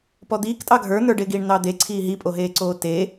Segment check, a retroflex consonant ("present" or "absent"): present